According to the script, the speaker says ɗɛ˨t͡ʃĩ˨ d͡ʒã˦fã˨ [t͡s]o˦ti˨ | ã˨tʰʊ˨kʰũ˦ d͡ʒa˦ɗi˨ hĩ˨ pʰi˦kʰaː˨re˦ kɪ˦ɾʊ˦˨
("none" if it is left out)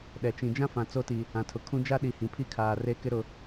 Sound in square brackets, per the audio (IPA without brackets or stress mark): t͡s